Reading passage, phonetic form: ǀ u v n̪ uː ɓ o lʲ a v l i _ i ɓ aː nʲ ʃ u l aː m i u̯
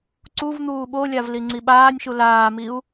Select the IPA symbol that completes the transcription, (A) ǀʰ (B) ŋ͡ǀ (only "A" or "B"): B